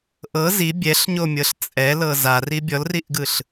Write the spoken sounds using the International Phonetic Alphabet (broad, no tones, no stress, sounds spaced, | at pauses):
ʔ ɤ z i bʲ ɛ ɬ ɲ o mʲ ɤ ɬ t͡sʼ ɛ l ɤ z a r i bʲ ɔ l r i ʔ ɡ ɯ ɬ